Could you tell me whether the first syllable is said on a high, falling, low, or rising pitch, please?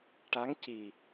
rising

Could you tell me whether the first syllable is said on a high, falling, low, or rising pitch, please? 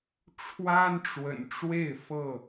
high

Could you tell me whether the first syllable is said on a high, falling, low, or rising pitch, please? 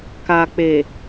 low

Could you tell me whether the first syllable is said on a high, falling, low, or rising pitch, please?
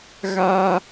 high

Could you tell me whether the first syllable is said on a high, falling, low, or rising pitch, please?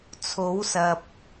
rising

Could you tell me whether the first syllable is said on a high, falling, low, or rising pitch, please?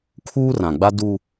high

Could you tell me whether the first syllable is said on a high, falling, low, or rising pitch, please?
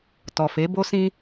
low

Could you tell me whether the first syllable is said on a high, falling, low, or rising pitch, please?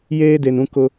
high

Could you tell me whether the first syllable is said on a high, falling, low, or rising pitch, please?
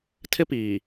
high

